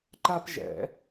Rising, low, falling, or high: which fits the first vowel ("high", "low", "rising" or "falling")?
high